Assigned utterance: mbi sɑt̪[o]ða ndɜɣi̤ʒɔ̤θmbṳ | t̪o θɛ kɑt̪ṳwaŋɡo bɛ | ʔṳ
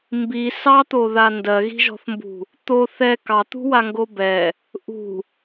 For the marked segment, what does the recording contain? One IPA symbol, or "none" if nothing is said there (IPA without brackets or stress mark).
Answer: o